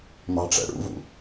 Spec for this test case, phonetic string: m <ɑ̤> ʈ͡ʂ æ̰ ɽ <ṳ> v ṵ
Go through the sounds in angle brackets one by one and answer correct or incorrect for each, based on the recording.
correct, incorrect

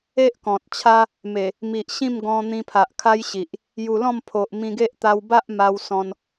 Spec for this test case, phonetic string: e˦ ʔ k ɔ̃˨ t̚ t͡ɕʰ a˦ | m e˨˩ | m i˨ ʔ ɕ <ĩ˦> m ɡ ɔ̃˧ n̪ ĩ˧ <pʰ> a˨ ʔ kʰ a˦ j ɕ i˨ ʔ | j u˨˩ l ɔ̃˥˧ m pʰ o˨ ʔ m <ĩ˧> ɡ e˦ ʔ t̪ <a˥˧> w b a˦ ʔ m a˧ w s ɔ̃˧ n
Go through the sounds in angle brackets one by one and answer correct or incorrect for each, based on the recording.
incorrect, correct, correct, incorrect

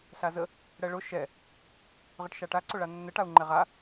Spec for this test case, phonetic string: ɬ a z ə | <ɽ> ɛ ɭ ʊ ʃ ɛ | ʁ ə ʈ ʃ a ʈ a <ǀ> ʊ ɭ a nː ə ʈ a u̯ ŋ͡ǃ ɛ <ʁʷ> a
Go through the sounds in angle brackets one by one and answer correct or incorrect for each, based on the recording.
correct, correct, incorrect

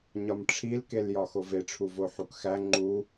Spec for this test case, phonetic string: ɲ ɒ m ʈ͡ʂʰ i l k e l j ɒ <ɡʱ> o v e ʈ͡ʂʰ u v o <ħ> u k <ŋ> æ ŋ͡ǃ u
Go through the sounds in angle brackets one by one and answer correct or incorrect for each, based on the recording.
incorrect, correct, incorrect

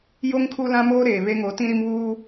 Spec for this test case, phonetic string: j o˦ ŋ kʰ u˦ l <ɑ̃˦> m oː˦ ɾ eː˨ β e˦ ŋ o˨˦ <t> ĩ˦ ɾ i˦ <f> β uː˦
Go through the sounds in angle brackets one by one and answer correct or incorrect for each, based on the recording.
incorrect, correct, incorrect

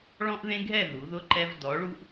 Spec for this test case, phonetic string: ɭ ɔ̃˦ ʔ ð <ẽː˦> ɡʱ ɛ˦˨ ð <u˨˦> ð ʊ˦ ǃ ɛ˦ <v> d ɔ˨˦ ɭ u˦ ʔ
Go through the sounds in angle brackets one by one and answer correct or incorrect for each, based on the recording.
incorrect, correct, correct

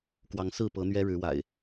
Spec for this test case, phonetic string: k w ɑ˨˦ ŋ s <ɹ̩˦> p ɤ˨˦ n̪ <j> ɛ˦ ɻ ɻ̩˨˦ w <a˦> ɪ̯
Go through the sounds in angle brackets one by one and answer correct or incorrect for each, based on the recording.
incorrect, incorrect, incorrect

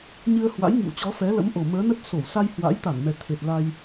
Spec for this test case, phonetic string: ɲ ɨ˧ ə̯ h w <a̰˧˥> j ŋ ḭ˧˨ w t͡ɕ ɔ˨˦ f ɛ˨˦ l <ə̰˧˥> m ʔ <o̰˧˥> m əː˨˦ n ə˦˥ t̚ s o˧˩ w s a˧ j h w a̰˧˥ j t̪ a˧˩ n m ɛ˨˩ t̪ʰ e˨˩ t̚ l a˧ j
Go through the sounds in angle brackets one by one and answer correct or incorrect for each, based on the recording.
correct, correct, incorrect

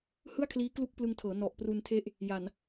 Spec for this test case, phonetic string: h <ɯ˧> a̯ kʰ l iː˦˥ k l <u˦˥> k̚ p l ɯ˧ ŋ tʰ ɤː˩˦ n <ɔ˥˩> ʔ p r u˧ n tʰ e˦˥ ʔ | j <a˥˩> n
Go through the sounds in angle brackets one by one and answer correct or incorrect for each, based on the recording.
incorrect, correct, incorrect, incorrect

